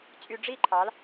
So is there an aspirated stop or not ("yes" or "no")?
yes